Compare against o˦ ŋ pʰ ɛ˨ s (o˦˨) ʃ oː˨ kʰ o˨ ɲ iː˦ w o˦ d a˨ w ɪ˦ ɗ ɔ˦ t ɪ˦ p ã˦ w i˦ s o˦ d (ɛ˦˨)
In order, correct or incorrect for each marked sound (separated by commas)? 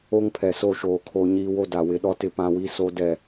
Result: correct, correct